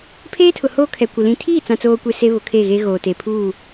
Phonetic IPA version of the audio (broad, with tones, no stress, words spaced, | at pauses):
pʰeː˦tʰʊ˨ hoː˦kʰɛ˨kʷɪ˨ lĩ˨tʰiː˦˨t͡sã˨t͡soː˨ kʷe˦se˦βʊ˨ kʰe˦˨ɣe˦ ɣoː˨ te˨pʰuː˦˨